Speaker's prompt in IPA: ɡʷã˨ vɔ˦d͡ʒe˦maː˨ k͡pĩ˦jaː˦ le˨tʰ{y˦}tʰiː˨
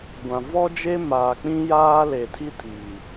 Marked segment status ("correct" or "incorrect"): incorrect